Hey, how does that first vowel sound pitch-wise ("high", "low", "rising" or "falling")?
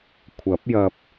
rising